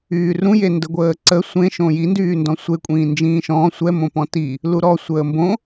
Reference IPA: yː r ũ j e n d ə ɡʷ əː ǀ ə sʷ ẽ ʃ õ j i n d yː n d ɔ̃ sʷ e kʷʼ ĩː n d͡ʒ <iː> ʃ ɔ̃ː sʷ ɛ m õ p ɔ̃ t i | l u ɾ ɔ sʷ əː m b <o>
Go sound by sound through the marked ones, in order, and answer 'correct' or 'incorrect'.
incorrect, incorrect

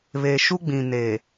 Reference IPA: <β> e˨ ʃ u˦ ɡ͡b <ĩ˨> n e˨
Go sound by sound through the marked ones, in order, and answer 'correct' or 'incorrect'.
correct, correct

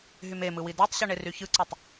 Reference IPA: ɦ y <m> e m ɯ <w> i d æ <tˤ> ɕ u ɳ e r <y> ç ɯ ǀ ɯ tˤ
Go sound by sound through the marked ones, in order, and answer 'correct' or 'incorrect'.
correct, correct, correct, correct

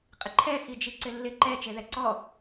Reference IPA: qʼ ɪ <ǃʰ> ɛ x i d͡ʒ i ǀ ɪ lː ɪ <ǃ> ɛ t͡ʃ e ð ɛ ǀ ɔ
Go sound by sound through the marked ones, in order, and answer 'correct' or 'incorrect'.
correct, correct

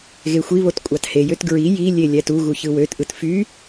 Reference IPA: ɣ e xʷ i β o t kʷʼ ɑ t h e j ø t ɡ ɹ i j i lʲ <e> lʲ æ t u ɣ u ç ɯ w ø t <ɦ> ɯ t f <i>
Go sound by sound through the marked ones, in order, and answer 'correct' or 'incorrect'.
correct, incorrect, incorrect

